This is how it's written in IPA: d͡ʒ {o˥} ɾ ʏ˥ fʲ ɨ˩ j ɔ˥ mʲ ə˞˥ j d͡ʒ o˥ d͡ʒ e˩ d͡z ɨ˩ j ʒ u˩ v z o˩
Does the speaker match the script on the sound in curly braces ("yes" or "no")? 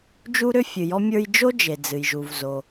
no